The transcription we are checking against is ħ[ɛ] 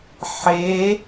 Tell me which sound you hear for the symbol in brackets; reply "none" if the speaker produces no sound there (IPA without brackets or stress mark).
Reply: e